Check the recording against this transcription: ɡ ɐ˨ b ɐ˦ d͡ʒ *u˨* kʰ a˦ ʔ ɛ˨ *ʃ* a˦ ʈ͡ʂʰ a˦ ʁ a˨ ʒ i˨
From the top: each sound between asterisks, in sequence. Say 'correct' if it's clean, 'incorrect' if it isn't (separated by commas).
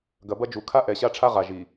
correct, incorrect